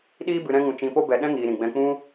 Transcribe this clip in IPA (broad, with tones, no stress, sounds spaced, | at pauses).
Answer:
ɗ iː˦ b ɨ˧ ɾ ɛ̃˦ ŋ ũ˧ t͡ʃ ĩ˧ p o˦ b ɛ˧ ɗ ɛ̃˦ ŋ iː˧ ɾ ĩ˨ ɡ͡b ɛ̃˧ k͡p ũ˦